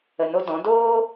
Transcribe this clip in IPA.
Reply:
ə˨ n o˧ d ɔ̃˨˦ d oː˦

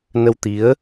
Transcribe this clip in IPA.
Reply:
n ə˧ w t̪ i˨˦ ə̯

